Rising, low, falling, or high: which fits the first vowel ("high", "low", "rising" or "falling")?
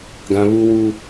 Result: high